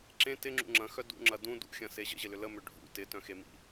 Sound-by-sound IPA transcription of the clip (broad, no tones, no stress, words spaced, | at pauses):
ǁẽ tɪŋ͡ǁṵ ŋ͡ǁɐ̃xœ dṵŋ͡ǁɐ dũ dṵxʲɐ̃se ʑə̰ʑɪlʏ ləmʏ ɖʱṵ tɪtœ̃xemḭ